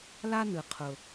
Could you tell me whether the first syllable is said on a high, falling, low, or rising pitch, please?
high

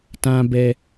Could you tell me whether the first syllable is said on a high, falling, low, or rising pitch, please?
high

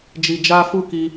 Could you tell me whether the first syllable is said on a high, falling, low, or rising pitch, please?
low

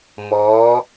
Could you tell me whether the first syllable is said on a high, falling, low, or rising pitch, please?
rising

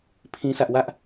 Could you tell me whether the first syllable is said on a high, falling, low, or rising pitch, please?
high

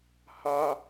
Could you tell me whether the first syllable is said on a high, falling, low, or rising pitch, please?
high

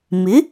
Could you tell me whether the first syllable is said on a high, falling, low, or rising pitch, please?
rising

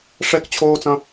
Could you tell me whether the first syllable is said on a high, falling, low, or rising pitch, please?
high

